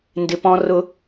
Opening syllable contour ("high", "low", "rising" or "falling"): low